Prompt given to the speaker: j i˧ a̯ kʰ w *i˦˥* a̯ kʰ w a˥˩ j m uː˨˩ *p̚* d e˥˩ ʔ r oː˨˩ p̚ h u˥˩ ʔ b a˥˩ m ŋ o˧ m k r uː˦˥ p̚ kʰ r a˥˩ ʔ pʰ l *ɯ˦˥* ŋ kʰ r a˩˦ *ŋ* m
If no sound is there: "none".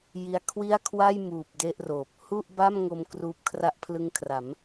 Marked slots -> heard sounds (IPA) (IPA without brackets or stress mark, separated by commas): i˥˩, p̚, ɯ˧, none